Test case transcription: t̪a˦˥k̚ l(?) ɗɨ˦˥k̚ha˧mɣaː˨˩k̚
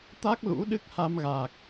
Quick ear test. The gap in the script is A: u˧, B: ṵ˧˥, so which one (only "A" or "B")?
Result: B